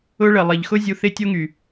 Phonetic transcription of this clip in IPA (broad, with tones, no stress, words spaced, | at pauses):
ʊ˦ɭə˨ lˠɪ˨ʎxʊ˦ zʲu˧θɪ˦tʲo˦ŋy˨